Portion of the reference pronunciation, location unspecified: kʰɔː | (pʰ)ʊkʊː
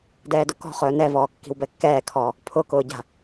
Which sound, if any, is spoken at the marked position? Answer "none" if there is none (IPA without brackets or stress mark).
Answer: pʰ